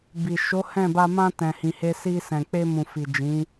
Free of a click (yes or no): yes